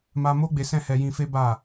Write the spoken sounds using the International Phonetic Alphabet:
ma˧ mo˦ ɡ͡be˧sɛ̃˦hɛ˧ jĩ˧fe˦ ba˦˨

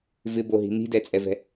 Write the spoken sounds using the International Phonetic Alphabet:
vɪboɦi̤ n̪i̤dɛt͡sʼɛvɛ̤

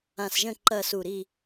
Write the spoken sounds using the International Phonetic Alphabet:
ã˧˩sʒə̃˥˨ ǃɐ˥˨su˧˩ ɾi˥˨

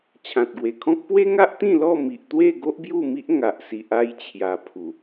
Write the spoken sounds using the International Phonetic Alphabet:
t͡ɕʰã˨t̚ɡwe˨˩kʰɔ̃˦k̚ pwe˦ŋa˦ʔt̪ĩ˥˧ lɔ˥˧mi˨ʔt̪we˥˧ɡo˦ʔ bju˥˧ mi˦ʔ ŋa˨ʔsi˨ʔ a˧jt͡ɕʰja˨˩ pʰu˨˩

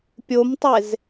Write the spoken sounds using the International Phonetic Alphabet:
pʲomtˤez

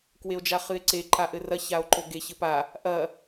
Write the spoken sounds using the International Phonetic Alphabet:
kweo̯d͡ʒaχɨe̯ǀe ǃaʔɘrɐ çao̯ǃoɡe çɘpa | ʔɐ

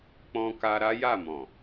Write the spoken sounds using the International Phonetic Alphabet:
k͡pɔ̃˧ka˧ ɾa˦ja˦˨mɔ̃˨

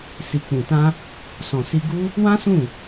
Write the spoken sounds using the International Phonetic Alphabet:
si˨k͡pũ˨tã˧ | sɔ̃˨si˧ɡu˦ | wã˦ sũ˦˨

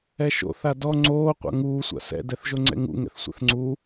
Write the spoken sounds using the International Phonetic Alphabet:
ɛʃo̰ θadɔ ŋ͡ǀoː qʷa̰ŋuː sʷa̰sɛ̰ dɛθʒoŋ͡ǀɛ̰ŋṵ ŋɛ̰θsʷa̰θŋ͡ǀu

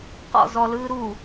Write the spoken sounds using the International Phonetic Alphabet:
qɔ̰ zɔlɯː ɾu

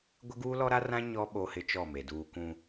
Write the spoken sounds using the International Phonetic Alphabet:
ɡʷɪ˦ɡuː˦lɔ˦ɾa˦ rã˦ ɲɔ˦ ɓo˦hɪ˦t͡ʃɔ˦˨me˨ duː˨kũ˨

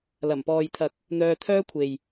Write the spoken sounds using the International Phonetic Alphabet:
lɐ˨˩mpɔː˨jt̪ʰɐ˨k̚ | n̪œː˧t̪ʰœː˥kʷʰe˨j

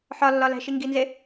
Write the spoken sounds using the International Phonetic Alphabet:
ħɒlːɒ læ̤ʃiŋɡinze

